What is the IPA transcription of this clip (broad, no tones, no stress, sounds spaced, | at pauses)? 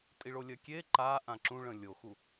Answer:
tʼ i ɭ o lʲ ɜ kʲ e ǃ a ʔ ã ǁ ũ ɭ ə̃ lʲ o x u